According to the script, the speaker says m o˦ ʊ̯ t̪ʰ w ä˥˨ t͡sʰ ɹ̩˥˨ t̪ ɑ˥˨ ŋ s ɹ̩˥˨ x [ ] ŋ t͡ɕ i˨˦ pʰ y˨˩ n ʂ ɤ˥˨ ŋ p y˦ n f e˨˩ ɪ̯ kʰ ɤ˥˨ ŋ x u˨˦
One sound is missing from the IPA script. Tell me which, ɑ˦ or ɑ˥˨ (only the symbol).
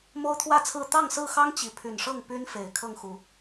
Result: ɑ˦